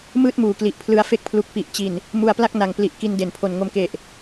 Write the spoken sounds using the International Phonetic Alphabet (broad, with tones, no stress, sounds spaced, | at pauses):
m ɯː˥˩ t̚ m uː˨˩ k l i˨˩ ʔ pʰ l ɯ˧ a̯ f e˦˥ k̚ pʰ l u˨˩ k̚ p i˨˩ ʔ t͡ɕ i˨˩ n | m u˧ a̯ p l a˥˩ k̚ n a˨˩ ŋ p l i˨˩ ʔ k i˧ n d e˩˦ n pʰ o˨˩ n ŋ o˧ m k e˨˩ ʔ